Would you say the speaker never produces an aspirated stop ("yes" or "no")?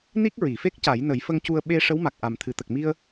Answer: no